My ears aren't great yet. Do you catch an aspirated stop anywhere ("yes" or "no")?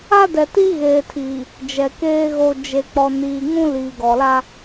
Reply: yes